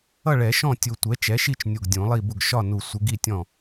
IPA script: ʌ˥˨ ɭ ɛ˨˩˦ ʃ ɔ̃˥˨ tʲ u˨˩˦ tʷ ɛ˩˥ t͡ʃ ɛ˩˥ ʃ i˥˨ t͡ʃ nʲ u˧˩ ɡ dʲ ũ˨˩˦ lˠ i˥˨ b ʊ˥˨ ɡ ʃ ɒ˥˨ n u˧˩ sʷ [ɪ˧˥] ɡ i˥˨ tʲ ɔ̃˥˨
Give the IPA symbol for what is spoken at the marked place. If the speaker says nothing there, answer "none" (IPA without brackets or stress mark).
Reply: ɪ˧˥